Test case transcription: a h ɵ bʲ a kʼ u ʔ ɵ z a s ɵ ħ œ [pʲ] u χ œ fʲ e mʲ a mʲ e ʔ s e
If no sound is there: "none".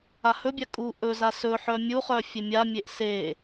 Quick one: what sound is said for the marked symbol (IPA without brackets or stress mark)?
mʲ